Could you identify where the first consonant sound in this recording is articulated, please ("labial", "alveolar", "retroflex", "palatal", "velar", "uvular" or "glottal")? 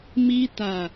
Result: labial